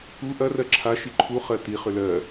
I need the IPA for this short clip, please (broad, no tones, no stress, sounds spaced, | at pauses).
u ʔ ɐ r ɜ ǁʰ a ʃ i ǃʰ u χ ɜ t i χ ʏ l ɜ